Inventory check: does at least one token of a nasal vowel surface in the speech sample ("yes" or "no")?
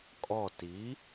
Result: no